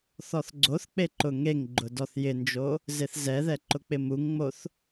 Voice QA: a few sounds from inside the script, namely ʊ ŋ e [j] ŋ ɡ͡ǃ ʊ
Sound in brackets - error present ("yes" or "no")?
yes